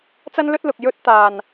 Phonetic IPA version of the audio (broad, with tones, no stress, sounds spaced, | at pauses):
t͡s ɐ˥ n l ɵ˥ t̚ l ʊ˨ k̚ j ɵ˥ t̚ t̪ aː˨ n